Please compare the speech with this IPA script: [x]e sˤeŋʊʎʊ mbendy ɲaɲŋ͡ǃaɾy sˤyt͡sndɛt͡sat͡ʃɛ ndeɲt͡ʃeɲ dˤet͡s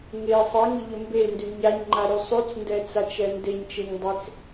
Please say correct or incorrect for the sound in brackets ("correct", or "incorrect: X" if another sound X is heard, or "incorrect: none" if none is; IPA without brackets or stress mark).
incorrect: ŋ